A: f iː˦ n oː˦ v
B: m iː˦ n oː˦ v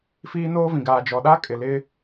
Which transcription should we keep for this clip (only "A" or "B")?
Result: A